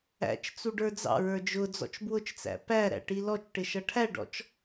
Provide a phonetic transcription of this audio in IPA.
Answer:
æ̰t͡ʃ t͡suɖə˞d͡zɑ̰ɹə˞ d͡ʒʊd͡zɔ̰t͡ʃ bwʊt͡ʃt͡sæ̰ pæɾæ̰ ʈilɔt͡ʃʈɪ ʃʌʈʰæɖɔ̰t͡ʃ

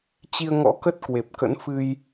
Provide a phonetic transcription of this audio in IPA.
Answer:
t͡ɕi˧ə̯ŋɔ̰˧˥kə˦˥t̚ kwe˨˩p̚kə̰˧˥nfɨ˧j

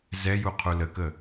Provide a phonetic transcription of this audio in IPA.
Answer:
zɛju qʰuləkə

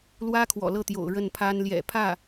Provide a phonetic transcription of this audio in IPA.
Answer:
lwä˥kʰwɔ̰˨˩ lɤ˥˩t̪jo̰˨˩ʊ̯ ɻə˥˩npʰa˥n ljɛ̰˨˩pʰä˥˩

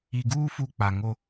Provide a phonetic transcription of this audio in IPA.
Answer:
i˨ɡuː˦ fu˦k͡pa˨ŋo˦

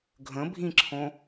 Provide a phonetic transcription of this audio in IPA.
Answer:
ɡʱə̃bʱĩǁʰõ

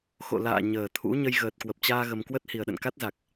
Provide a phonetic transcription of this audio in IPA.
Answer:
xo̰˧˨la̰ː˧˨ ɲəː˨˩t̪ʰṵ˧˥ ɲə˧jɣəː˨˩t̚kwə˨˩p̚t͡ɕaː˧ ɣə˧m kwə˦˥t̚hi˨˩ə̯ɗə̰˧˨nka˦˥t̚ za˨˩k̚

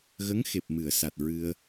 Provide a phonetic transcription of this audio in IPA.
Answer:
ɣə˧˥ŋxe˨˩p̚mɨ˨˩˨ə̯sa˨˩t̚ ɹɨ˧ə̯

